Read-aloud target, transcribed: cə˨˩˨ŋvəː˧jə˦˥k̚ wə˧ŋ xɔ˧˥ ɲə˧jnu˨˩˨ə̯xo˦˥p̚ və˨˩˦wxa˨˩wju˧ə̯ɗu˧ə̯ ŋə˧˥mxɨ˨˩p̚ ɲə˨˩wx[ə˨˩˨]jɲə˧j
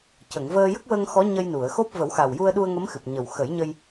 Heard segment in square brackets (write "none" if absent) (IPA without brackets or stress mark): ə˨˩˦